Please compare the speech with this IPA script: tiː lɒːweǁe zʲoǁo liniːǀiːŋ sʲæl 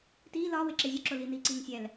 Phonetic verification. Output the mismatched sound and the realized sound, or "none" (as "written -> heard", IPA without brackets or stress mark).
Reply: none